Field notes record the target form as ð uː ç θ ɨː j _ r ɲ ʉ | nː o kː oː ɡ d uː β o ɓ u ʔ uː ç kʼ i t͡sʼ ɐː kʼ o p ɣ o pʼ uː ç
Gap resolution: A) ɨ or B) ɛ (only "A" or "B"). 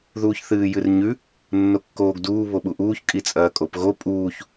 A